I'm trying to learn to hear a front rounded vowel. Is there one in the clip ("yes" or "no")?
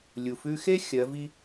no